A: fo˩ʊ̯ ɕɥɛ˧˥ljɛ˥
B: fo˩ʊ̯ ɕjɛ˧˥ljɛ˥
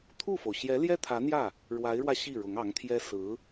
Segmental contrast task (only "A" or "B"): B